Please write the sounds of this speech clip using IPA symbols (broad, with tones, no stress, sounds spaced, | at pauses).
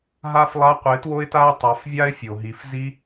ɦ a˦ f lˠ a˧ qʷ ɪ˨˦ t w o˦ ɪ̯ t a˦ ɪ̯ tˤ a˨˦ f vʲ a˦ ɪ̯ fʲ o˨ ɦ i˨ f z i˦